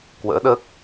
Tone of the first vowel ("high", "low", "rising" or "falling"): rising